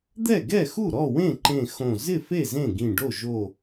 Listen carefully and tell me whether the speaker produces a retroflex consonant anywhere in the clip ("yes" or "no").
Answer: yes